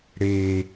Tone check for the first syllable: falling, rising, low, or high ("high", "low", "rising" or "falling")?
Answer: low